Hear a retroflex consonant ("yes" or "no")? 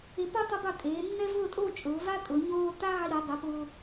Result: no